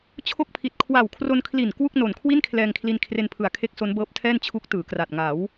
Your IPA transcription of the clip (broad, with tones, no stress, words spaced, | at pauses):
t͡ɕʰo˥˩k̚pʰi˨˩t̚ kʰwa˨˩wkʰro˧nkʰli˨˩n kwu˥˩k̚no˨˩n kʰwi˥˩nkʰlɛː˧ŋkʰli˧n kʰre˧npʰɯ˨˩a̯kʰe˦˥k̚ so˦˥nbɤː˦˥p̚tʰɛː˥˩n t͡ɕʰu˦˥k̚tɯː˩˦kra˨˩t̚ ŋa˩˦w